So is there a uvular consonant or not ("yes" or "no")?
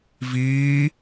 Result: no